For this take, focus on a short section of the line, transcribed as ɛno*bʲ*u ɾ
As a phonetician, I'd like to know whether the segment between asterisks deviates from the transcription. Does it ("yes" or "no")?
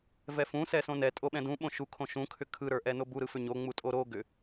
yes